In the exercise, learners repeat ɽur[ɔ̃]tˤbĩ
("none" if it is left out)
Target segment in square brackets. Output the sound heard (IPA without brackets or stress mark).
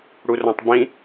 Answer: ɔ̃